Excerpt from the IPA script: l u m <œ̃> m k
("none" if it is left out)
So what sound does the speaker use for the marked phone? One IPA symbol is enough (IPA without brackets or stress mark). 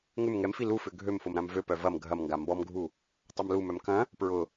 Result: œ